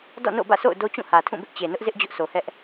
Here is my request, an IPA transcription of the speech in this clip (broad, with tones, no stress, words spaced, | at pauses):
dɔ̰˦˨no̰˦˨bä̰˦˨ so̰˦˨ʊ̯do˦t͡ɕũ˦˨ hä˨tʰũ˦˨bɪ˦ʔ t͡ɕe˨nʊ˦ʔzɪ˦ʔ d͡ʑʊ˦ʔso˨hɛ˦ʔ